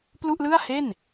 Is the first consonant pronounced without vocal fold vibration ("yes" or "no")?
yes